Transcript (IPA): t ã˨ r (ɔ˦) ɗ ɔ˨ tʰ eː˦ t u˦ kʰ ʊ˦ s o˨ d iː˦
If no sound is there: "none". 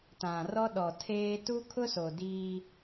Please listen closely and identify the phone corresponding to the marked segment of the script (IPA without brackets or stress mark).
ɔ˦